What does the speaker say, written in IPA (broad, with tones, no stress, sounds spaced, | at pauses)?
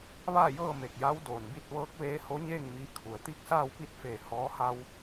ʋ aː˥˨ j ɤː˥˨ m e˧˩ k̚ j a˧˥ w d oː˩ n b i˧ t̚ ʋ ɤː˧˥ k̚ ʋ eː˧˥ h o˧˥ ɲ eː˥˨ ŋ m iː˧ kʰ u˩ ə̯ t̪ i˥˨ k̚ s aː˥˨ w p i˥˨ t̚ f eː˧˩ h ɔː˧˥ h a˧ w